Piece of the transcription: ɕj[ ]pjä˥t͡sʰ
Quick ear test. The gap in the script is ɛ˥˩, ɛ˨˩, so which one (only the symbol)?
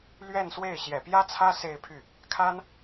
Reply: ɛ˨˩